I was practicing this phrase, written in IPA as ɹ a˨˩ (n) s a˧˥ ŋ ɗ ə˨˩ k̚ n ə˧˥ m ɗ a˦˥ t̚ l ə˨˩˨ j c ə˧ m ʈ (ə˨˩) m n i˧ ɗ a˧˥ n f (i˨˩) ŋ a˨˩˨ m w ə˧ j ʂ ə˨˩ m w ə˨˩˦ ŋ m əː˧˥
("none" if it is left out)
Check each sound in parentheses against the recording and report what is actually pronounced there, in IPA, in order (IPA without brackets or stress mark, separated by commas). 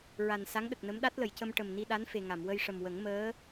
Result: n, ə˨˩, e˨˩